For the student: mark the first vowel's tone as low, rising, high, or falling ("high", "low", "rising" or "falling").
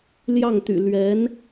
falling